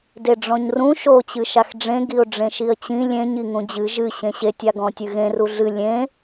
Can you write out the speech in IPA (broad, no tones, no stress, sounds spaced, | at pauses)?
d e ɖ͡ʐ ɔ̃ ɲ r ũ ʃ o t͡ɕ ɨ ʃ a x ɖ͡ʐ ẽ ɡ i ʊ̯ ɖ͡ʐ ẽ ʃ i ə̯ t͡ɕ ĩ lʲ ẽ ɲ i ŋ ũ d͡ʑ ɨ ʒ ɨ ɕ ẽ ɕ e tʲ a ɡ ɔ̃ tʲ ɨ ɣ ẽ r u ɮ ɨ lʲ ẽ